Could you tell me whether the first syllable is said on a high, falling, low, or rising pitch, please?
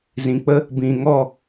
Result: low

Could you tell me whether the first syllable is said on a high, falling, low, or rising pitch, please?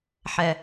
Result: low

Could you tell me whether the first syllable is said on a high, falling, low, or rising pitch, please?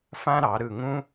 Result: high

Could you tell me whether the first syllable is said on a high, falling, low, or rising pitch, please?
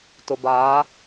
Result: low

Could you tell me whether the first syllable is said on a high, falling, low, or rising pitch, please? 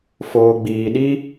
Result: low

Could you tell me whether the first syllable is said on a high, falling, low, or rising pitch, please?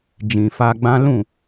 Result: low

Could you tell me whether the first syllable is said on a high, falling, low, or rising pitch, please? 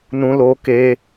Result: high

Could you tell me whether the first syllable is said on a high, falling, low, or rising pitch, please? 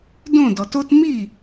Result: falling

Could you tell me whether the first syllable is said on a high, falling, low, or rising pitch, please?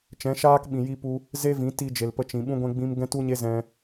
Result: rising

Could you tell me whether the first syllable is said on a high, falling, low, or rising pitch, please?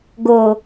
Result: low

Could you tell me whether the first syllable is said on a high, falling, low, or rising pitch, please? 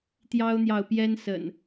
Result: high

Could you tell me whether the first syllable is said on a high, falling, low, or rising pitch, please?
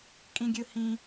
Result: high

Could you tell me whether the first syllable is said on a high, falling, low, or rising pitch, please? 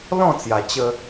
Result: falling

